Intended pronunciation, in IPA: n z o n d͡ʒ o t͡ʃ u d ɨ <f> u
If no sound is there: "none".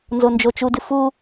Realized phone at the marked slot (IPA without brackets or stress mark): f